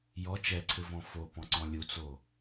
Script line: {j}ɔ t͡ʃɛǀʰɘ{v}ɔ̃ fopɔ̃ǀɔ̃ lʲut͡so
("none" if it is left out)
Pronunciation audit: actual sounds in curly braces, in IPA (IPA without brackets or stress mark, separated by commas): j, v